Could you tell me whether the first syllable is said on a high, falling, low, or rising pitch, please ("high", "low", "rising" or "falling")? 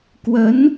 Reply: rising